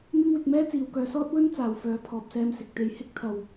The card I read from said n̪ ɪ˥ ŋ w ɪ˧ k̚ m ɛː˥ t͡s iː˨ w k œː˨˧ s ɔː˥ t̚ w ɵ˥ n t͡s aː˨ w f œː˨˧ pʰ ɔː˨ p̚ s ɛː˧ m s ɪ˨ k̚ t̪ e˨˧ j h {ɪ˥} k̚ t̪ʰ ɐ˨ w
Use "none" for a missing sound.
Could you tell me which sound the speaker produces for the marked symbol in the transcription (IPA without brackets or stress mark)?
ɪ˥